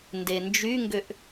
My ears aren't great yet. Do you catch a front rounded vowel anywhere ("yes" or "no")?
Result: yes